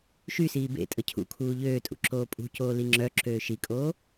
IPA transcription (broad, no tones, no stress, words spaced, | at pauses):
ʃysiː bḛ tʼəcʰṵkʰuː ʎøːtʼṵ ǁoːpʼṳcoː liŋ͡ǁœǁøː ʃikʼoː